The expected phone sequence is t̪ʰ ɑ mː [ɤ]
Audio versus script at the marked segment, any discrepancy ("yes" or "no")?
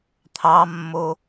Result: yes